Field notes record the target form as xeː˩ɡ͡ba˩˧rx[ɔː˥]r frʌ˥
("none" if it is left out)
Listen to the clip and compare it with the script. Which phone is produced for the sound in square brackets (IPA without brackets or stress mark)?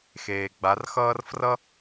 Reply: ʌː˥